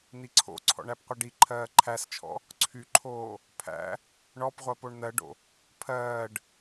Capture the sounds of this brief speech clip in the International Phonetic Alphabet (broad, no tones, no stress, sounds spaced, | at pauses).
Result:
n̪ i ǀʰ o̰ ǀʰ ɔ̰ ɳ æ p qʷ ʌ ɖ i ǃʰ ɜː ǃʰ æ s t͡ʃʰ ɔ̰ | ǀʰ y ǃʰ oː | pʰ æ̰ | ɳ ɔ p ʁʷ ɜ p o ɳ n̪ ɜ ɖ o̰ | pʰ ɜː ɖ